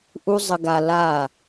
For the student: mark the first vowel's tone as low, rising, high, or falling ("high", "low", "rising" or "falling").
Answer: high